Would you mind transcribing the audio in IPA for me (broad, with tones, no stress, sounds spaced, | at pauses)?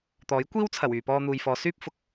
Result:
t̪ ɔː˨˥ j kʷ iː˥ w t͡sʰ ɐ˨˩ w yː˨ p ɔː˧ n̪ uː˨ j f ɔː˨˧ s yː˥ p̚ f ʊ˨ k̚